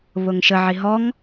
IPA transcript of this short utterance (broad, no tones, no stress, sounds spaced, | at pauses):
β ʊ ŋ ʃ ə ʕ i ɦ ɔ ŋ